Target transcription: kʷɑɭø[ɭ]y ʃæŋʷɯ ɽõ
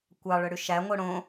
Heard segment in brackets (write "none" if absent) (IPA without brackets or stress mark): ɽ